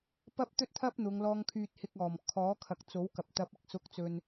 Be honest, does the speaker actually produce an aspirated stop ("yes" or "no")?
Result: yes